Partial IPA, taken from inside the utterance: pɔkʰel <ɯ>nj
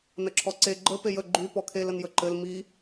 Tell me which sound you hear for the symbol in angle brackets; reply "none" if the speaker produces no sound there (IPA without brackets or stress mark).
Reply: ə